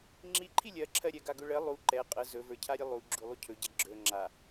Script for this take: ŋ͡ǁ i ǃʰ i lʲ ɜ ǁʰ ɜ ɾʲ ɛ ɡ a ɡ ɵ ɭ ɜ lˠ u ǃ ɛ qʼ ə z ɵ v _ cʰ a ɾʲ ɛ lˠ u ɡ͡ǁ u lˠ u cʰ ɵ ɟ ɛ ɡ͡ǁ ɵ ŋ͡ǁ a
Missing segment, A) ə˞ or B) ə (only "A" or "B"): A